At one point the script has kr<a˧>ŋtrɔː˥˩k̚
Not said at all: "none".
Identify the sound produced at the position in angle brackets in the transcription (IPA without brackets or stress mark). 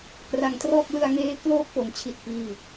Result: a˧